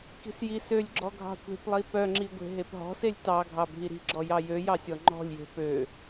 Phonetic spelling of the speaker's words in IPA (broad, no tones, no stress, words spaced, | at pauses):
ki̤sjisølʲɡ͡ǁɔ ɡʱɑ̤kʷe̤plˠi pœŋ͡ǁi ɡʷe̤ɦepɦɔ̤selʲ tɑ ɡʱɑbʱiɾi̤ɡ͡ǁɔ jɑjøjɑ sʲɔŋ͡ǃɔ̤lʲje̤ pø